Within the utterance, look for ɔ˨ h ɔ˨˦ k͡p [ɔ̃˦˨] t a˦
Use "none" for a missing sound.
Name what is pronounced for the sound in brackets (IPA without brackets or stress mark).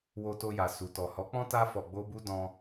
ɔ̃˦